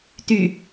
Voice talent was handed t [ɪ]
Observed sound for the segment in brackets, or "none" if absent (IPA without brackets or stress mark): y